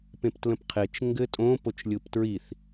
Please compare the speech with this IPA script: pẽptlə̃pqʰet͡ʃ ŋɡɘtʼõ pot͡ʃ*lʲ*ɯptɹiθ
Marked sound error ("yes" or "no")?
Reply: no